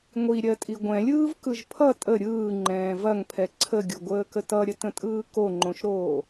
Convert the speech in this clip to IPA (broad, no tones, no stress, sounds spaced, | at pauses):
ŋʷ i ɾʲ ɜ tʼ i ɡʷ ɛ̃ lʲ ɯː v k ɯ ʒ pʰ ʌ tʼ ə ɾʲ ɯː ŋ͡ǃ ɛ̃ː v ɐ ŋ pʰ ɛ ǀʰ ə ɡʲ o ɡʷ əː k ə t ʌ ɾʲ ə t ə̃ tʼ ɯː k o ŋ͡ǃ õ ʃ ɾ oː